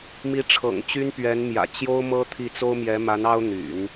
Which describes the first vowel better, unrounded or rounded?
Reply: unrounded